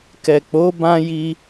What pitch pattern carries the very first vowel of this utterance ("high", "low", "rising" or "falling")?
low